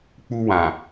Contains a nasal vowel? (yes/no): yes